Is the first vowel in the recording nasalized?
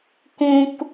yes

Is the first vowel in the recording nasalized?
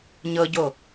no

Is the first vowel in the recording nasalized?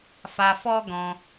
no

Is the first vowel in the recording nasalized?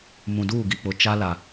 yes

